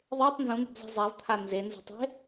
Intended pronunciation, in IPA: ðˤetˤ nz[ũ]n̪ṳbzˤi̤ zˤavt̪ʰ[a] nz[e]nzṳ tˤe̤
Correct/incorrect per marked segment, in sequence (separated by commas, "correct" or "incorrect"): correct, correct, correct